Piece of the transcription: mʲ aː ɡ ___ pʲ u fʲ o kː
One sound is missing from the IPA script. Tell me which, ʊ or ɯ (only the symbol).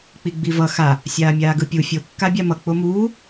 ɯ